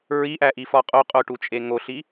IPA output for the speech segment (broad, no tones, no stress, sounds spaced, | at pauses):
ɹ i ʔ æ ʔ i f ɒ qʼ o qʼ o ʈ u t͡ʃʼ e ŋ o ɬ i